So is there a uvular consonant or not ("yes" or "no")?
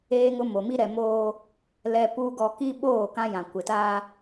no